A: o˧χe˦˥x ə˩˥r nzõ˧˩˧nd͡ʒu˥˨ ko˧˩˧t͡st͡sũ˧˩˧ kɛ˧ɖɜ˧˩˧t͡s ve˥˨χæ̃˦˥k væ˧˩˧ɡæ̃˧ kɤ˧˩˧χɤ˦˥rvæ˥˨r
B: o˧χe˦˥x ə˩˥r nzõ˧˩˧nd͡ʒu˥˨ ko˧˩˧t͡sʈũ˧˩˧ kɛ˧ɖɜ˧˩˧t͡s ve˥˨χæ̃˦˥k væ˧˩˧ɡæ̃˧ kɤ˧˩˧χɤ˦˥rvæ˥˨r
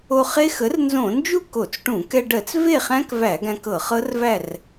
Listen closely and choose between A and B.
B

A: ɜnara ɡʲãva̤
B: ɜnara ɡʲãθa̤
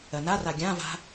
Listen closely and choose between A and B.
A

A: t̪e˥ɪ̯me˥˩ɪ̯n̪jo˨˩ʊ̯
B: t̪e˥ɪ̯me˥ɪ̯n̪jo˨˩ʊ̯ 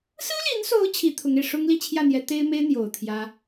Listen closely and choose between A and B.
B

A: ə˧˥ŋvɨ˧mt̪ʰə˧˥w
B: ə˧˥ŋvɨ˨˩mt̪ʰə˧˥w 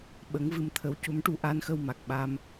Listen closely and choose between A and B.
A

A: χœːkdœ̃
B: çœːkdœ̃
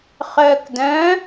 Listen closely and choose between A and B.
A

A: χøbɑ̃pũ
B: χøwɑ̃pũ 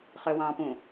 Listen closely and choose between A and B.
B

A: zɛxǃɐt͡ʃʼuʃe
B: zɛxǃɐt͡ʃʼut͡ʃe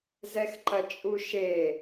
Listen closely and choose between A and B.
A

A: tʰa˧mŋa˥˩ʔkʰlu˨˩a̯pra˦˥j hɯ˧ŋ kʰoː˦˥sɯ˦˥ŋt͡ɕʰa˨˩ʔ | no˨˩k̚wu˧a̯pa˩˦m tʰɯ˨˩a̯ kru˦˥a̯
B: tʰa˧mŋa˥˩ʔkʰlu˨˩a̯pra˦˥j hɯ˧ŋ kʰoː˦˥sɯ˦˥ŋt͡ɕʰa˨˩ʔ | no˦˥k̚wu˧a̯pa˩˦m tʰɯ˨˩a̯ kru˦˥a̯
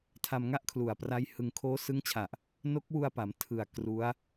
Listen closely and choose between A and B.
B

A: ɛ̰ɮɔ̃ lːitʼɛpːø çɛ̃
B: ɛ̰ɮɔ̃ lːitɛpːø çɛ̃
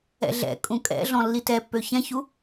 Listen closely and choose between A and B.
B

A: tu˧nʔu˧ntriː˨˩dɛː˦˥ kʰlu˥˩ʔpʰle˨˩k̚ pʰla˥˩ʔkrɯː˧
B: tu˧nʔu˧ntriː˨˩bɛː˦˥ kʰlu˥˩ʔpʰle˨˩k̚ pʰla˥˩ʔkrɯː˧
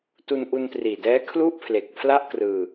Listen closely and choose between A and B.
A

